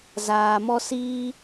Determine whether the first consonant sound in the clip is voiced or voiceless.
voiced